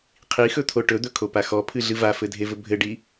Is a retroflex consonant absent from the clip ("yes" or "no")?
no